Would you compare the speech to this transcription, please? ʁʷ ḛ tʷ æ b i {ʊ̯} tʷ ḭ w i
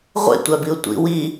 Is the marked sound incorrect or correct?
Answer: correct